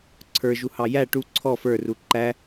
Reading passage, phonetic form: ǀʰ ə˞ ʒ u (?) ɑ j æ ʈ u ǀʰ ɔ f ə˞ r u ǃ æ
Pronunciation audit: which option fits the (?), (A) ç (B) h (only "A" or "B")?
B